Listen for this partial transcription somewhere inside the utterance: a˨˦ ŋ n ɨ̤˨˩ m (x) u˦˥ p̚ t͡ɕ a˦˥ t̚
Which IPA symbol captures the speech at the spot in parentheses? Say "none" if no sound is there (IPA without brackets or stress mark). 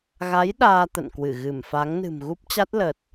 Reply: ɣ